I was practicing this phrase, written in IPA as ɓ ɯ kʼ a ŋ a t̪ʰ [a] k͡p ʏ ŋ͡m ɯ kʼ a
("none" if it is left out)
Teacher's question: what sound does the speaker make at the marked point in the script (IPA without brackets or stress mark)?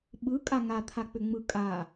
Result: a